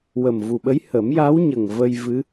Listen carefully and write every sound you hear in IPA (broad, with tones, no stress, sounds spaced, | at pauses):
w ə˨˩ m v u˨˩ ɓ ə˧˥ j h ə˨˩˦ m j a˧˥ w ɲ ə˨˩ ŋ v ə˧ j v ɨ˧˥